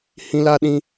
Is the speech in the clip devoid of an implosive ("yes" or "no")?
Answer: no